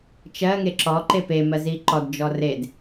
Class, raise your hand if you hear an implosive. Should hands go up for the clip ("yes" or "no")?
no